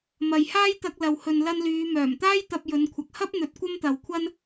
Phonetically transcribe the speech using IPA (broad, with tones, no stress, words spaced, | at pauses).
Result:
mɐ˨jhaː˥jt̪ɐ˧k̚ lɐ˨whɵ˨n lɐ˧nlyː˨˧ mœː˨˩mt̪aː˥j t̪ɐ˧p̚jɵ˨˧nkʷʰɐ˨k̚ hɐ˥p̚n̪ɵ˨˥t̚ kʷɐ˥mt̪ɐ˨wkʷʰɐ˥n